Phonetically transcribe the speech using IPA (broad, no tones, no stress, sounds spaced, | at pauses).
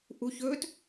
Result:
ʔ u ç ɵ t